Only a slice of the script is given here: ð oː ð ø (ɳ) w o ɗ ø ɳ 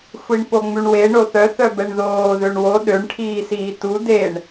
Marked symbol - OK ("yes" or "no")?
yes